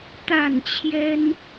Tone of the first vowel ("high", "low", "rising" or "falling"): falling